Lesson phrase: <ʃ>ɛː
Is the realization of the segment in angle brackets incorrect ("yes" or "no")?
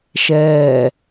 no